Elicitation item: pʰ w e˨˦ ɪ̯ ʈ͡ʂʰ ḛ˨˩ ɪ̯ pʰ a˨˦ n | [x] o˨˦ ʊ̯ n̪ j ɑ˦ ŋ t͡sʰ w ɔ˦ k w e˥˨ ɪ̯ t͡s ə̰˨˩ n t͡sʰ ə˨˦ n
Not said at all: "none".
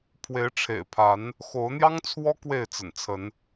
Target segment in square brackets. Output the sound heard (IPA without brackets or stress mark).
x